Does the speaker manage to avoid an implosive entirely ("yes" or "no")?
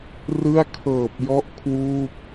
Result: yes